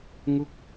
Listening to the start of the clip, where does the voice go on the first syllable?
falling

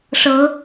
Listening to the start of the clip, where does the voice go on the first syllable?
rising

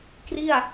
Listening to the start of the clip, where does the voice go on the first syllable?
falling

